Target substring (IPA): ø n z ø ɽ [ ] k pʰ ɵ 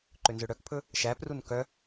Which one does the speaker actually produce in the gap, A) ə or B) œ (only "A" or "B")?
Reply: B